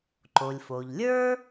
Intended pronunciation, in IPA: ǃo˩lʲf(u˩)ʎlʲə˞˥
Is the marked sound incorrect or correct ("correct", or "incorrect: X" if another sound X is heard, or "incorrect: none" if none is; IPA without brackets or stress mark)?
incorrect: o˩